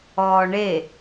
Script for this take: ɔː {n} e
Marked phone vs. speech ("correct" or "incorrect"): incorrect